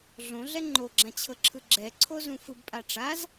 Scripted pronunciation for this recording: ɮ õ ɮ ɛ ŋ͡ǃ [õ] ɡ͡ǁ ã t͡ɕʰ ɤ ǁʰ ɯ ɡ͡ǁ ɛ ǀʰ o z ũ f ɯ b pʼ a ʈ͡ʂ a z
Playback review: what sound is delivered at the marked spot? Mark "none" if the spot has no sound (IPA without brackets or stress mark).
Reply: o